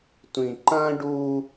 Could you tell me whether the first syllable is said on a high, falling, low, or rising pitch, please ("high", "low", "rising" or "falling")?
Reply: low